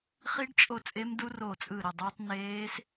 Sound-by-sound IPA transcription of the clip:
χ i˦˥ ɖ t͡ʃʼ o˥˩ t͡sʼ e˦˥ m d u˦˥ r oː˥˩ t͡sʼ ɯ˥˩ ɾ ɛ˥˩ dˤ uː˦˥ tˤ n eː˦˥ s

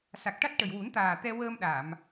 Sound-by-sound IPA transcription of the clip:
s a˨˩ k̚ ʈ a˦˥ t̚ ʈ ə˨˩ j w u˨˩˦ n t̪ aː˨˩ t̪ ɛ˧ w əː˧ m ɗ a˨˩˨ m

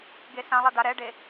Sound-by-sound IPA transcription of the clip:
ɡ e s ã lˠ ɛ d a ɾ ɛ ɖ e

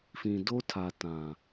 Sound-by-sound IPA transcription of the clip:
f ĩ˨ d o˦ tʰ a˨ t ã˨

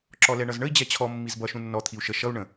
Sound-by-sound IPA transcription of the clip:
ǁ ɔ l ɛ ɳ ʌ z ɳ ə i̯ d͡ʑ ɛ t͡ɕʰ ɔ mː i z b ʌ ʃ ũ nː ɔ t̪ʰ i u̯ ʃ ə ʃ ʌ u̯ ɳ ə̃

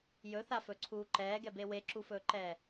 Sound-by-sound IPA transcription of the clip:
j ɵ θ a f ɵ ǀʰ uː ǃ ɛː ɡ ɛ b e w e ǁ u f ɵː ǃ ɛː

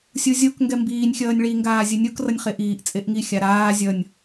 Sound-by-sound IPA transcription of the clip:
sʲ u zʲ o k ŋ ɡ ɛ m b iː nʲ xʲ ʌː nʲ ɭ i ŋ ɡ aː zʲ ɯ nʲ u k r ʌ nʲ χ e ʔ iː ʔ t͡sʼ e ʔ ŋ i xʲ a ɾ aː zʲ ʌ nʲ

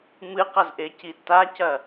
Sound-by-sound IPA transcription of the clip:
m ɨ q ɐ z ʔ e c i t a c ɐ

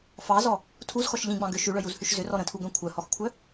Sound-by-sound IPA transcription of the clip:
f ɑ z ɔ | tʰ u z x ɔ ʃ ʎ ĩ ɡ͡b ɑ̃ ɡ ʏ ʃ ʉ ɭ œ j u z h ʉ ʃ z ʏ r ɔ ɾ ə̃ tʰ u ɡ œ̃ kʷʰ œ h ɔ x kʷʰ œ

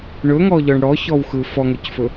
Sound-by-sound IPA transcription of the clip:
ɳ ɵ ŋ ɔ ʎ ɔ ɳ ɽ ɔ ç ɔ w x ɯ f ɔ ŋ ɵ c f ɵ

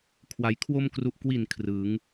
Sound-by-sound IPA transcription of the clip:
kʰ w a˦˥ j kʰ w o˧ m k r u˨˩ ʔ k w i˨˩ n kʰ r ɯ˩˦ ŋ

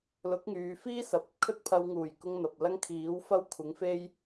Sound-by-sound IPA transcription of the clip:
l ʊ˨˥ k̚ ŋ yː˨˧ f iː˥ s ɐ˨ p̚ kʰ ɵ˥ t̚ pʰ ɐ˧ w ŋ uː˨˩ j k ʊ˧ ŋ n̪ ɐ˨ p̚ l ɐ˥ ŋ kʰ iː˨˥ w f ɐ˥ w kʷʰ ɪ˨˥ ŋ f e˥ j

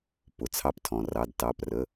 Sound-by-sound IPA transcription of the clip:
p ʊ˩ t͡sʰ ɑ˧˩ p tʰ ɔ̃˩ r ɑ˩˧˩ d t ɑ˩˧˩ p r ə˩˧˩

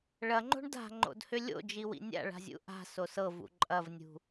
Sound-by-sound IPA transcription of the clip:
ɭ ɐ ŋ͡ǃ o̤ ɳ d a̤ ŋ͡ǃ o̰ d h ʏ lʲ o̰ d͡ʒ i w ḭ nʲ a̰ ɭ a̤ zʲ ṵ ʔ a̤ s o s ɤ v ṵ ǃʼ ɐ v nʲ ṳ

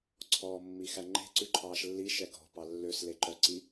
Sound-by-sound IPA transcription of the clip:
ǀʰ ɔː mː i x æ ŋ͡ǃ e̤ ǀ ʉ ǃʰ ɑː ʃ lː i ʃ ɛ ɡʱ ɔ̤ p ɑ lː ø s l e ǃ œ ǀ i

